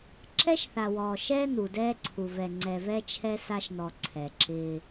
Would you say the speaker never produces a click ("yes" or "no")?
no